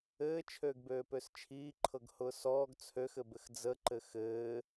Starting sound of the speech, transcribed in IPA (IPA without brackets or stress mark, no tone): ɘː